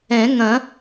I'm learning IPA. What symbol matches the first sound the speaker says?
ɛ̃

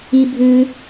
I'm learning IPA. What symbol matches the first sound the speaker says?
i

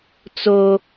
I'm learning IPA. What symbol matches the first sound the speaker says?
t͡s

